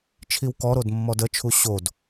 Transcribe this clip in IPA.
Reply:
t͡ʃʰ i w k ɔ ɾ o d mː ɔ d ə t͡ʃʰ u ɕ o d

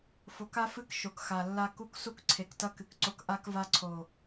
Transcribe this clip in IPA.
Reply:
f o˨ k a˦ f ɨ˦ k ʃ o˨ k x a˨ lː a˦ k u˦ k s u˦ k ǀʰ e˨ k t ɐ˦ k ɨ˨ k ǀ o˦ k ʔ a˦ k v a˦ ǀʰ o˨

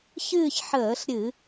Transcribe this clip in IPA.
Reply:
ç ɨː˥˧ ç ħ əː˧˩˧ ɬ ɾʲ ɨ˧˩˧

